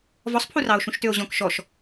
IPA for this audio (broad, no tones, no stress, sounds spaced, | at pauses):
v ɔ sˤ pʰ u r ɑ o̯ ʃ ũ ʃ t ø o̯ ʑ ɔ̃ k ʃ ɔ ʃ